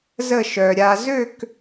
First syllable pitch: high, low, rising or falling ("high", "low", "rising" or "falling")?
falling